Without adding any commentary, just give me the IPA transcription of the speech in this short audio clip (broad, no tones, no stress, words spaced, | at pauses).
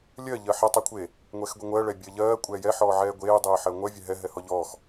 lʲɜ ʎɜħɛtˤ ɛkʷʰe | ŋʷɛxɡʷɛŋʷɜ ɭɛbʲɜʎɜː kʷʼɛːjɛ ħɔːʕɛːɡʷeː dˤeːħɜŋʷɜ vʲɛɦɛ ɦɛhɔʎɔːx